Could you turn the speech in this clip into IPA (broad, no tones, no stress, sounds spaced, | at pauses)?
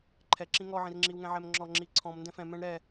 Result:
ǃʰ ɛ ǁ ĩ ŋ ɔ ʕ ĩ r ŋ͡ǁ i w ŋ ɛ̃ ʕ ɛ m ŋ͡ǁ ɔ ŋ͡ǁ i ǀʰ ɔ̃ m n d ɛ̃ f ɛ̃ m ɛ̃ ɳ ɾ ɛ